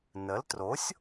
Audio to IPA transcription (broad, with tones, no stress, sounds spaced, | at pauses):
n ə˩˥ l t r o˩˥ sʲ